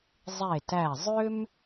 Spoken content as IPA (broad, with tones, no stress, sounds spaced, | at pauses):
zˤ e˧˩ t æ˧˩ zˤ ʏ˥ m